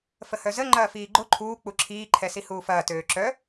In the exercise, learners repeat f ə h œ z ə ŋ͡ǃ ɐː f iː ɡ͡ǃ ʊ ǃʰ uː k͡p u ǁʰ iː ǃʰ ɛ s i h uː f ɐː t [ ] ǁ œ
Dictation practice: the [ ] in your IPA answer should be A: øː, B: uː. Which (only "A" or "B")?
A